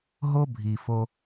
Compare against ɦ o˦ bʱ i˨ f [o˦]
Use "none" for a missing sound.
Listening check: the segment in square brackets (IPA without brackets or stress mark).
o˦